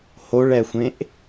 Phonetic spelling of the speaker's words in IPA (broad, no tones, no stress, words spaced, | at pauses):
hoɭɛxʷẽʔ